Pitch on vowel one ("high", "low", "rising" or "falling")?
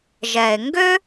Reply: low